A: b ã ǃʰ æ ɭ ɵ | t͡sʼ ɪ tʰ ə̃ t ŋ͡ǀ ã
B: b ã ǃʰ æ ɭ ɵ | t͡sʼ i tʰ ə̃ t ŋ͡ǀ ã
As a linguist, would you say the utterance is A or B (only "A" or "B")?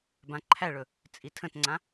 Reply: B